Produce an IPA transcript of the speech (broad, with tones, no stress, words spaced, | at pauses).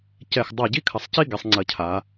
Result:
cɛ˧˩x dˤa˧˩ɟi˥kʰɐ˩˧sˤci˥ ɡɛ˩˧sˤŋ͡ǀɐ˧˩cʰa˩˧